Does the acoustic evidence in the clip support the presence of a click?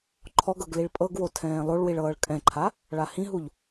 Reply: yes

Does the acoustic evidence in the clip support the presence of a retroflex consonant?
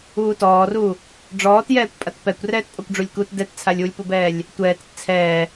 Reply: yes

